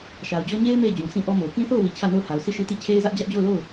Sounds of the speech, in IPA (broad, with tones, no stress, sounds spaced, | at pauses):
ʃ a˨ ʊ̯ d͡ʑ ɔ˦ ɲ e˦ ɪ̯ m e˦˨ ɪ̯ d͡ʑ ũ˨ s ĩ˦ ʔ ɔ˦ m o˨ ʊ̯ k ĩ˦ θ o˦˨ ʊ̯ w i˨ t͡ɕʰ ä˦˨ n o˦˨ ʊ̯ h a˨ ʊ̯ s i˦˨ ʃ i˦ t i˦˨ t͡ɕʰ e˦ ɪ̯ z ä˦ ʔ d͡ʑ ä˦ ʔ d͡ʑ o˦˨ ʊ̯ l o˦˨ ʊ̯